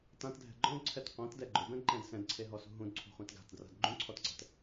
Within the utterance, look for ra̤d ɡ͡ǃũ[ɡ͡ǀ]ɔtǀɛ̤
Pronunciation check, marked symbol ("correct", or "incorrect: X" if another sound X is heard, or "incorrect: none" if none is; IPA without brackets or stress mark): incorrect: ǀʰ